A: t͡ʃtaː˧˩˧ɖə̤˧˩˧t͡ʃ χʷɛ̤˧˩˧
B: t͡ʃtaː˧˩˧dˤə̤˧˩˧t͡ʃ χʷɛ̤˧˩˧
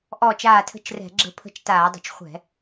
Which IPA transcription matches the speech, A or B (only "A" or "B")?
B